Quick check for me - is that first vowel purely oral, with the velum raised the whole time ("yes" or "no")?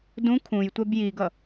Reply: no